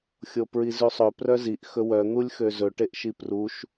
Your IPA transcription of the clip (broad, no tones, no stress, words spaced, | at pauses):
xʲopɹizʉsˤɵ prœziʔ xɵwœ n̪ulʲxøzɵ ʈeʔʃipruʃ